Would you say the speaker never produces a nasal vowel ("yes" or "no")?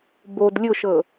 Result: yes